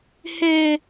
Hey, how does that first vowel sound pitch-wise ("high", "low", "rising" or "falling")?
high